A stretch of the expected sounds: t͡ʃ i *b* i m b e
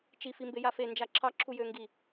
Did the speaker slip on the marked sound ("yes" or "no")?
yes